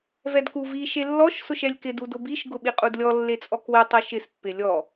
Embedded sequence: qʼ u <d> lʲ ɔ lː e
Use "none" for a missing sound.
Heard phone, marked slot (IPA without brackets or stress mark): d